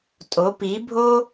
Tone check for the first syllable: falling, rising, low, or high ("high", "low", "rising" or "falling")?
rising